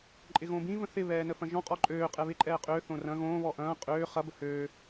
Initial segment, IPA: ǃʼ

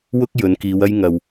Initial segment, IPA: w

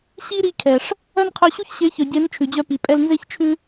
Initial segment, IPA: ɕ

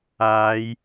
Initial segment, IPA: aː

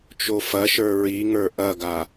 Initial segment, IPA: t͡ʃ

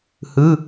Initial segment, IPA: h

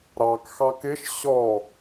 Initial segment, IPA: ɾ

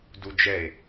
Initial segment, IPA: d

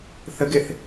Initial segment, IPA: θ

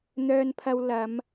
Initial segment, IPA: n̪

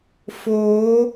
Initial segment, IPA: f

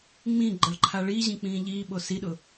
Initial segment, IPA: ŋ͡m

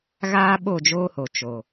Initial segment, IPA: ɣ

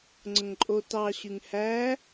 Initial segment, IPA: ŋ͡ǀ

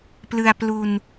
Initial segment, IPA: p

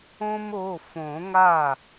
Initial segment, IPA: õ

